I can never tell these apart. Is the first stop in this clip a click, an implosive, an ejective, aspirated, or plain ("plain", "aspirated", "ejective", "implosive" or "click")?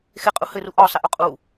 ejective